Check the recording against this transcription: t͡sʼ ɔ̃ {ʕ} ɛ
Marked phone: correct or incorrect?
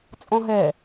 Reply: incorrect